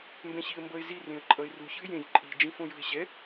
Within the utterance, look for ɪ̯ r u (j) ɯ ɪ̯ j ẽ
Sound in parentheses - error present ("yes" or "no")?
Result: yes